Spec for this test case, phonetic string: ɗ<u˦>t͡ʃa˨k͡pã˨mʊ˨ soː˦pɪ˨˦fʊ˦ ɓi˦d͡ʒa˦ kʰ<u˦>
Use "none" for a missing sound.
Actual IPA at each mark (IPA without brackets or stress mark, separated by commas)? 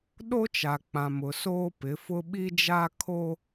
o˦, o˦